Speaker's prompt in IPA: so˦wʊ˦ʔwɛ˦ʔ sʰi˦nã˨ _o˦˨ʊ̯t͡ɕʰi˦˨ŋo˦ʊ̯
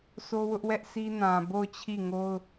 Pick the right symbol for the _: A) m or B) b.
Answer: B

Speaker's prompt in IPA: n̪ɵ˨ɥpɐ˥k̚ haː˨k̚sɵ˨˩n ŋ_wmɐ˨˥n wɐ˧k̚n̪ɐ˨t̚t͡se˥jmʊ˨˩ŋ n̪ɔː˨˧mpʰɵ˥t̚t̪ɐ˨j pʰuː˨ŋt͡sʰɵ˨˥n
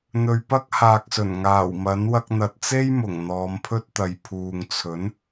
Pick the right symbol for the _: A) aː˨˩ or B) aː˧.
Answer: A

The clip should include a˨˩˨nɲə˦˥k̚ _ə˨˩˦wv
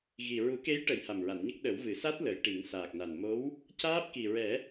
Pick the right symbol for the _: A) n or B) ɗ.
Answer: B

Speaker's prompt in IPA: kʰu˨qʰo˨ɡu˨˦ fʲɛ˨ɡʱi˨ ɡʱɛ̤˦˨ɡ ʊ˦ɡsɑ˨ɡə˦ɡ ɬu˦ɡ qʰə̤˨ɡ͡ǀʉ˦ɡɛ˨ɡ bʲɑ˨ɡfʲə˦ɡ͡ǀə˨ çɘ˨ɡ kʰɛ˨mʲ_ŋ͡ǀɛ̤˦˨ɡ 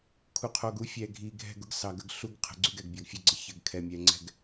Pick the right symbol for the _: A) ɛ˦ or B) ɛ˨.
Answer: B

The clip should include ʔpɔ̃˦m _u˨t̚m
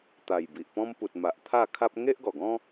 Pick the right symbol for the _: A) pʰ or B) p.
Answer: B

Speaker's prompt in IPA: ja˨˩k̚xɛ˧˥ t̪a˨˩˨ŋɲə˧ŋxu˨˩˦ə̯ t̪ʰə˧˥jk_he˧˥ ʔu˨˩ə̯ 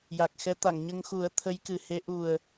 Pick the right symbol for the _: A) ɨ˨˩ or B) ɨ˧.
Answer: A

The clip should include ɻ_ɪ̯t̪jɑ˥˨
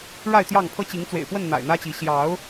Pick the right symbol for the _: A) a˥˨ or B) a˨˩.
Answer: A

